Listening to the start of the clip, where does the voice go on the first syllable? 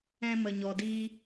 high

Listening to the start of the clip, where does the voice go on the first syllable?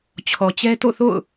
low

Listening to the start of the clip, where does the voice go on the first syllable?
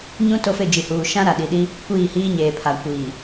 high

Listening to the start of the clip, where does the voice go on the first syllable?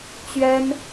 high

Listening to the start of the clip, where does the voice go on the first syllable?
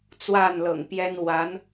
falling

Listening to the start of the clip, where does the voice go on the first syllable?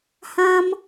high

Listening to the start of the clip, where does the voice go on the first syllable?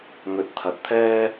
rising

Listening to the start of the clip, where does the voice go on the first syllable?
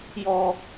high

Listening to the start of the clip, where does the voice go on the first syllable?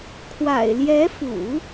low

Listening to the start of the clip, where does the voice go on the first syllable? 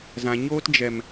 low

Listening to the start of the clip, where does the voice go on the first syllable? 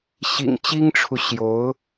low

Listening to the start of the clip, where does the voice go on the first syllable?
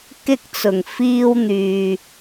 high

